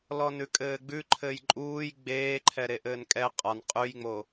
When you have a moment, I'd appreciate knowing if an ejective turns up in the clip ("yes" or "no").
yes